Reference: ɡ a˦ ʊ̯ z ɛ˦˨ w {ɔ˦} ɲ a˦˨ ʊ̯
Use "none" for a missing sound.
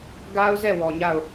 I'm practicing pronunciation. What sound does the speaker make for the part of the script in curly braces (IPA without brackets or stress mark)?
ɔ˨